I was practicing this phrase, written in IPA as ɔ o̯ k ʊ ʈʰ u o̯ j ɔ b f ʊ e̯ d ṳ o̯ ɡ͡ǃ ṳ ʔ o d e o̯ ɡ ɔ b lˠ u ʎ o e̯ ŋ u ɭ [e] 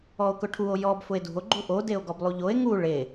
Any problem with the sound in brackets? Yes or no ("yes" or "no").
no